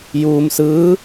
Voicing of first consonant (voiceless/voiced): voiced